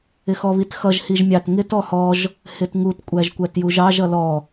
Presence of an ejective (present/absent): present